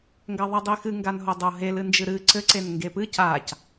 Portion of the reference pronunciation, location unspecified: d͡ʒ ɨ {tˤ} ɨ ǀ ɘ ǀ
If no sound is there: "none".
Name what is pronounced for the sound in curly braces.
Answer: ɾ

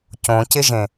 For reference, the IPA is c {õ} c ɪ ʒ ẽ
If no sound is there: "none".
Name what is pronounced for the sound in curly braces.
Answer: õ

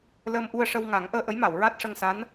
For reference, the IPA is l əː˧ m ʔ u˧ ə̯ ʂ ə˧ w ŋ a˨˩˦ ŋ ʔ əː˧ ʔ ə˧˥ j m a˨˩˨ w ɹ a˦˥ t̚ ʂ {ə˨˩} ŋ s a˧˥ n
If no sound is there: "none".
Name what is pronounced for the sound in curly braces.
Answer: ə˧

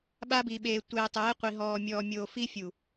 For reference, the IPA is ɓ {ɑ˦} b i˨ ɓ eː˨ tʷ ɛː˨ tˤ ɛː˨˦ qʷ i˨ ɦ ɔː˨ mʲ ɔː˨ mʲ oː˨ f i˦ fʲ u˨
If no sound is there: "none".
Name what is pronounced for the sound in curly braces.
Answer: a˦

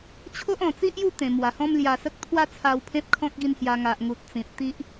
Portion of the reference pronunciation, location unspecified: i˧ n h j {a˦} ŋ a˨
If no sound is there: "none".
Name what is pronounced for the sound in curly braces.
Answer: a˧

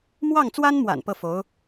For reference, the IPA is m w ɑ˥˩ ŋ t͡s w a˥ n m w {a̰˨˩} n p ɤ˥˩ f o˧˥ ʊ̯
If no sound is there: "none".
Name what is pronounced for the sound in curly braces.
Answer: a̰˨˩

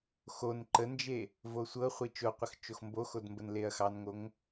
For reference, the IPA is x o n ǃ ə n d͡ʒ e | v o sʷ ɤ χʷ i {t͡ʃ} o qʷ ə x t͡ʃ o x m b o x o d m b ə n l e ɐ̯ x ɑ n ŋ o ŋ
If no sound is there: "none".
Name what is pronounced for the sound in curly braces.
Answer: t͡ʃ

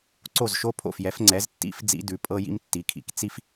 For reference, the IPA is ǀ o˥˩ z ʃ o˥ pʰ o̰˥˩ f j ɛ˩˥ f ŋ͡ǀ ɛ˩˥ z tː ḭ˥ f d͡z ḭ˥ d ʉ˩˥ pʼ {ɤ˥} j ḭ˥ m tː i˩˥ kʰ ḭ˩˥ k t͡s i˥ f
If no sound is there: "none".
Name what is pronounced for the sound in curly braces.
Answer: ɤ˥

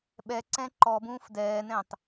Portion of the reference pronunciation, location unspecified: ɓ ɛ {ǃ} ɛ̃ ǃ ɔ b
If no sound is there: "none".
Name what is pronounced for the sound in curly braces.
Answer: ǀ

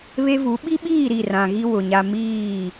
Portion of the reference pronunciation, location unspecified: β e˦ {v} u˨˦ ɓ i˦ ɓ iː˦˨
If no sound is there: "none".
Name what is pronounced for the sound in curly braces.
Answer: v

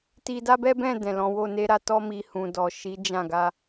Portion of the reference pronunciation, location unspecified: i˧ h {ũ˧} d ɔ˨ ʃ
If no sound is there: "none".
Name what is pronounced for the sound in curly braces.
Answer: ũ˨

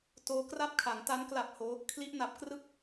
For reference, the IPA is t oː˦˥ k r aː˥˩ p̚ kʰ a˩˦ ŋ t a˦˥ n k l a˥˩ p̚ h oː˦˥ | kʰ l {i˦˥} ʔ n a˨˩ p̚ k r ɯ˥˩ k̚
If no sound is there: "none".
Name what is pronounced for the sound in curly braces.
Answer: i˦˥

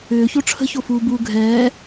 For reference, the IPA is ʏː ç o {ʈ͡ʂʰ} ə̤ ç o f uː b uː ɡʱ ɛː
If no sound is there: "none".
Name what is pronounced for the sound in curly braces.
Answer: ʈ͡ʂʰ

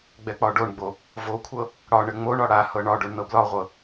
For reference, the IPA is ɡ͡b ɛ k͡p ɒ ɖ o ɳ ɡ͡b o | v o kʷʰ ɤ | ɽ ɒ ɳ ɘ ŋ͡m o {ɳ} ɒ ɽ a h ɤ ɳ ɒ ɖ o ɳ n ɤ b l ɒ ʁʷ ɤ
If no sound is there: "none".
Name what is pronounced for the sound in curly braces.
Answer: ɳ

